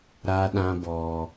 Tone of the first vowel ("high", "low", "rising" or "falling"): high